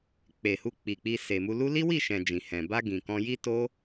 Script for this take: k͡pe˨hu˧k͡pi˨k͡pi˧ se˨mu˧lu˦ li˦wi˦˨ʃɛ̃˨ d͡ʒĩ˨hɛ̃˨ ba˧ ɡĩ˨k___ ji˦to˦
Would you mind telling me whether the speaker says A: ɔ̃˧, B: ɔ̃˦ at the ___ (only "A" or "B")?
A